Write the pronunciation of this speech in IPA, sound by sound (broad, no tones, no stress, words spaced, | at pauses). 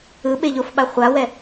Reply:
ɯɓeʎofɓa χʷawɛ